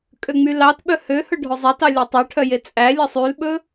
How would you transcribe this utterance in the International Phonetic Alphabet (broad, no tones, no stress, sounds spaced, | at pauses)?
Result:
kʼ ø ŋ͡m y l ɑ t ɓ œ h ø h ɵ ɖʱ ɵ zˤ ɛ t ɑ lʲ ɑ tˤ ø ʈʰ œ j e t͡sʼ æ lʲ ɑ sˤ y l ɓ ɵ